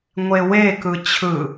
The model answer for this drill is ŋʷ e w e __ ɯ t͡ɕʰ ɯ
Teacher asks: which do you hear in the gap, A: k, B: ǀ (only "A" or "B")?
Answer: A